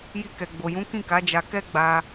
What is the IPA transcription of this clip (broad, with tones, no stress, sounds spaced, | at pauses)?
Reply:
j i˧ k ɛ˨ ɡ͡b o˨ j ũ˨˦ k ĩ˦˨ k a˨˦ d͡ʒ a˧ k ɛ˦ ɡ͡b a˧